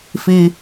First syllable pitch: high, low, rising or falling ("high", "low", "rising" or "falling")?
low